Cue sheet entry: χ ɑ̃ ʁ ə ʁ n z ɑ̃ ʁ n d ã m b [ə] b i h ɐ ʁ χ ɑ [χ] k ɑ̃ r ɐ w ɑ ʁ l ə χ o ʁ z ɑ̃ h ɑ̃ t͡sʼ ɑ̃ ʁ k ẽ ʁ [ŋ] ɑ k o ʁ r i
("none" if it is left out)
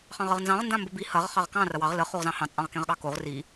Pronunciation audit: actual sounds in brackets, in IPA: ə, ʁ, ɠ

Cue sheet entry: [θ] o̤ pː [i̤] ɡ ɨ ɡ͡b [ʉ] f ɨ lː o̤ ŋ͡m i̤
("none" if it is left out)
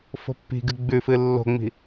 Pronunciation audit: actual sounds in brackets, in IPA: f, i̤, ʉ

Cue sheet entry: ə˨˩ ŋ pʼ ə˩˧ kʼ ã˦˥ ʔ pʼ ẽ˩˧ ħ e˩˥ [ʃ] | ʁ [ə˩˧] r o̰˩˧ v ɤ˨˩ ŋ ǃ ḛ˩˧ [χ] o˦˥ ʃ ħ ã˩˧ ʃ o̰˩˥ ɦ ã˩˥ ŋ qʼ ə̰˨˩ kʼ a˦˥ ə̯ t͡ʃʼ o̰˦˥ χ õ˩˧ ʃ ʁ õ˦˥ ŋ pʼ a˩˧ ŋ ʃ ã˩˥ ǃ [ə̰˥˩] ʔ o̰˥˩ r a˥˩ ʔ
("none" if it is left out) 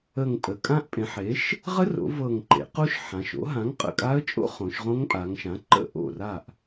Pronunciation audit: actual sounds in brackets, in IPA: ʃ, ə˦˥, q, ə̰˥˩

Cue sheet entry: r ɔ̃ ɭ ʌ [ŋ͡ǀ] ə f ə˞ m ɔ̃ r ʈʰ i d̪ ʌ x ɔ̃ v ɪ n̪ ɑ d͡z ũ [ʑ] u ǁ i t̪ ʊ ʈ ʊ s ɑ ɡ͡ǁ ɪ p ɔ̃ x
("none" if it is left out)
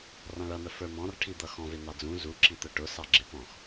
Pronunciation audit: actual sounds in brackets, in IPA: n̪, z

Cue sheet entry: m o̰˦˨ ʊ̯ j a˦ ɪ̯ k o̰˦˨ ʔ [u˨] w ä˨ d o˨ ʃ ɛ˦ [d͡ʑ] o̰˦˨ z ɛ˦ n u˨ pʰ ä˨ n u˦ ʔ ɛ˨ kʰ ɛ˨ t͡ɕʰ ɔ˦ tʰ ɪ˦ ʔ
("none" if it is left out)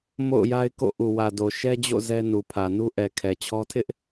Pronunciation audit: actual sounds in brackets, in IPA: u˨, d͡ʑ

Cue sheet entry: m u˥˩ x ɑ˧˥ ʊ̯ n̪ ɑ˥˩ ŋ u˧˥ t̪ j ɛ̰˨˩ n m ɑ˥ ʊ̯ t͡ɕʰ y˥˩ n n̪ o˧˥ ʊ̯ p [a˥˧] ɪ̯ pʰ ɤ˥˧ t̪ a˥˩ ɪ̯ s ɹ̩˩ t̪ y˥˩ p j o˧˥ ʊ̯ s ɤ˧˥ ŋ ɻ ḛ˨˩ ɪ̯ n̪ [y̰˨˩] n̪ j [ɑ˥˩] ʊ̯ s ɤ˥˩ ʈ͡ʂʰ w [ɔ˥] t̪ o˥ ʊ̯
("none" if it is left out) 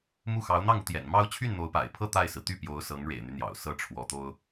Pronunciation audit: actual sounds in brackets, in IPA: a̰˨˩, y˦, ɑ̰˨˩, ɔ˧˥

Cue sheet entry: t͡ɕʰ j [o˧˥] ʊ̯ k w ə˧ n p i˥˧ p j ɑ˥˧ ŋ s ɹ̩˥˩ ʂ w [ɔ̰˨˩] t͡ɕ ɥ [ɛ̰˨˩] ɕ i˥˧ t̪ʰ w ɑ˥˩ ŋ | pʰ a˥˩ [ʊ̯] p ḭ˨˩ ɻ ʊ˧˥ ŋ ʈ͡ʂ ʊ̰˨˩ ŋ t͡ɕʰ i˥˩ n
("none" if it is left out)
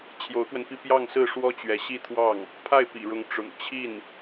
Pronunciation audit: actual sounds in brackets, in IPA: o˧˥, ɔ˥, ɛ˧˥, ɪ̯

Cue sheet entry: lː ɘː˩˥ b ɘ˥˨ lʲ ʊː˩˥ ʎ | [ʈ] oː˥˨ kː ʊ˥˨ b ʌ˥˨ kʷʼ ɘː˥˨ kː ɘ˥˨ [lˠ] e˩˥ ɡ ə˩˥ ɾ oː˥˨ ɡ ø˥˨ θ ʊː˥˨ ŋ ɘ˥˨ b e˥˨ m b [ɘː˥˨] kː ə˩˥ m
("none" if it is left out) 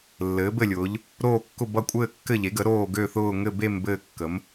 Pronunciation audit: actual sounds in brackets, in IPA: ɾ, ʎ, ɘː˥˨

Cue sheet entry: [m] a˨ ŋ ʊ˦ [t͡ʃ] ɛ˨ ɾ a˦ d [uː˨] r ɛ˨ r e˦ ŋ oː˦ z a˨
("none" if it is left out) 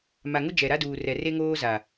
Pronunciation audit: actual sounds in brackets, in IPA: m, d͡ʒ, uː˨

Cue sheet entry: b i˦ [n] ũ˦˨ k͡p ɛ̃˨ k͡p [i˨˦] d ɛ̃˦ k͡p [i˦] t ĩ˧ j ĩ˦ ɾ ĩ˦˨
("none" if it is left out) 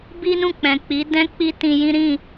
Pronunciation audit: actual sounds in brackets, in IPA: n, i˨˦, i˦

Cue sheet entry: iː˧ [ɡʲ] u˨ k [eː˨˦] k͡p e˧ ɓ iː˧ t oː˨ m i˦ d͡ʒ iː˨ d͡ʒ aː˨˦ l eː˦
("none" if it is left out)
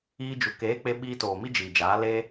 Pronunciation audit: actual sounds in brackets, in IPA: d͡ʒ, eː˨˦

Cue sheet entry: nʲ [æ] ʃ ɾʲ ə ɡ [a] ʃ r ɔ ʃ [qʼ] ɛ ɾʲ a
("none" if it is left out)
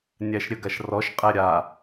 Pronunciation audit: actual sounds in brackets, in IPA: æ, a, qʼ

